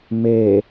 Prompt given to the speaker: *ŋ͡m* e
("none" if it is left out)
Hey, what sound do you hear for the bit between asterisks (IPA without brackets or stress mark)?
m